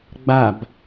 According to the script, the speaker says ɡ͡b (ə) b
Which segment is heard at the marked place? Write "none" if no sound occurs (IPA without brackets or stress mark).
a